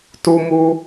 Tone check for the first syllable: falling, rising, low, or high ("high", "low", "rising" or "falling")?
high